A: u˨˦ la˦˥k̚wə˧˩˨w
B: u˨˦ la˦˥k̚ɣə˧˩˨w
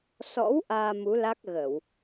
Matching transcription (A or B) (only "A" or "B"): B